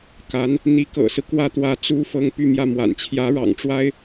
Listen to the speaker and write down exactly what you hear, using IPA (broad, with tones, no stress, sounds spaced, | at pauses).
k a˧˥ n | n̪ i˧˥ k ɤ̰˨˩ s ɹ̩˦ k w ä˥ t̪ w ä˧˥ t͡s u˥ f ɤ˥ ŋ p y˥˧ m j ä˥˩ m w a̰˨˩ n t͡ɕʰ j ä˧˥ ɻ ɑ̰˨˩ ŋ ʈ͡ʂ w a˥ ɪ̯